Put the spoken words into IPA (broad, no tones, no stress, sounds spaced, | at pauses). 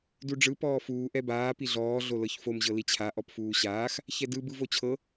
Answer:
d u ɖ͡ʐ ɯ p ɔː f uː ʔ ɛ b aː p i ɮ ɔː ɮ o l ɤ ç f o m ʑ ɤ l i t͡ɕʰ a ʔ ɔ p f uː ɕ aː x | ç ɛ d ɯ b ɯ v o t͡ɕʰ ɤ